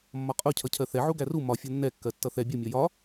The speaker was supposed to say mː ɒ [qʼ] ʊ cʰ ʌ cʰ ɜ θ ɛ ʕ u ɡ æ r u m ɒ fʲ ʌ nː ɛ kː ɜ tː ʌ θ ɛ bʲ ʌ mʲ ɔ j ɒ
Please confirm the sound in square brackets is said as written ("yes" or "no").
yes